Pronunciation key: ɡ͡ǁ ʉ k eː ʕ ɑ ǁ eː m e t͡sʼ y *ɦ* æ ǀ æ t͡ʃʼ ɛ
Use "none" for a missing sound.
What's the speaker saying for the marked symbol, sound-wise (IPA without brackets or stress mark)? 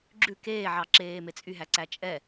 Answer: ɦ